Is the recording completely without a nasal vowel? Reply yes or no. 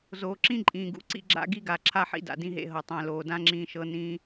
no